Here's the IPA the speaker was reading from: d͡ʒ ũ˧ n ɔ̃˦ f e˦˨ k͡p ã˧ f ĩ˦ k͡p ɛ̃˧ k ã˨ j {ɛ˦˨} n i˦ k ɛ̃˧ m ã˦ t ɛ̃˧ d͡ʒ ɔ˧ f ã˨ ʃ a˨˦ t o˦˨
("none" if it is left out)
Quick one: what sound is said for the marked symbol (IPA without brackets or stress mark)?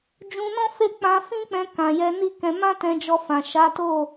ɛ˧